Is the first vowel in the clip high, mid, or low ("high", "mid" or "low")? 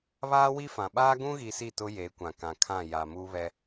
low